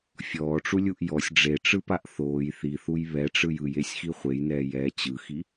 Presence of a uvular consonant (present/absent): present